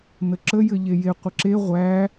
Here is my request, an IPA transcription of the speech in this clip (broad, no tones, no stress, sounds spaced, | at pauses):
n ə ǁ ə j ɘ ʎ e j e qʷ ə ǁ e ʁʷ æ